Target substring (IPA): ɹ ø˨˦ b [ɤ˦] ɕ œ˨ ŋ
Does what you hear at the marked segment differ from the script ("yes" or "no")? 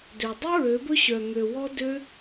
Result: yes